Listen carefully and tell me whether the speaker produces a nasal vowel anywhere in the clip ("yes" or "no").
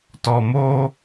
no